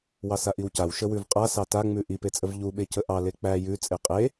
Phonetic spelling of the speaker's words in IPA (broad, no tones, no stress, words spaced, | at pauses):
wɑsaʔiwcaw ʃəwʉvqʼasɑ taŋ͡mʉ ʔipet͡sʼəv ʎuɓecə ʔɑ lek͡pæ jʉ t͡sʼeqʼe